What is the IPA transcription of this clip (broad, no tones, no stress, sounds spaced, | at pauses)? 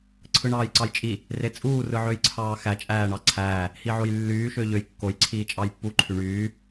ǀʰ ɯ ɳ ɑː j ǀ ɑ j t͡ʃʼ i | r e t͡sʼ uː r ɯ ʕ ø j ǀʰ ɑː x æ t͡ʃʼ æː ɳ ɑ ǀʰ æː | h i ʕ o j lː yː ʃ ø ʎ ø j kː o j ǀʰ iː t͡ʃʼ ɑ j pː u ǃʰ y ɳ yː